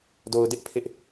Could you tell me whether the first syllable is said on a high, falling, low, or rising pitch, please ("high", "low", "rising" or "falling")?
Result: low